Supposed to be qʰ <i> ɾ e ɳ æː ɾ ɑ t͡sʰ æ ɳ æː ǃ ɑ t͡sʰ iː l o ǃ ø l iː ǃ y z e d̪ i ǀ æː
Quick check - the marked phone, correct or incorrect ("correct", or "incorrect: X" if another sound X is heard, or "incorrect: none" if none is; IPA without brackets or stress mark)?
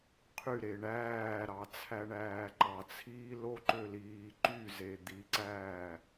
incorrect: y